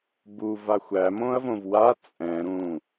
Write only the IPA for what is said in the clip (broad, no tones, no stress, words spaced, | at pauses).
buva xʷæmõɐ̯võv wa t͡sʼɛ̃ɾũ